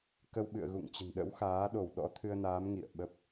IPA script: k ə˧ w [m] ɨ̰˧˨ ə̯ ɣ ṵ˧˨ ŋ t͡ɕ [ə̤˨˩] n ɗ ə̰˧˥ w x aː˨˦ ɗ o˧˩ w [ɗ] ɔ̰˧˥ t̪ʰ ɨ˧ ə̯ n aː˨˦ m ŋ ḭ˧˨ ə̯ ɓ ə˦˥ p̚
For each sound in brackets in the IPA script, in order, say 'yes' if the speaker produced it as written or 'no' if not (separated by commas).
no, yes, yes